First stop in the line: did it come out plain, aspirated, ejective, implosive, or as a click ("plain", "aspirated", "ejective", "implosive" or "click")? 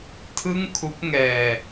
aspirated